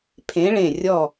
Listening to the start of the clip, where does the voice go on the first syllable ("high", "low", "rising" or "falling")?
rising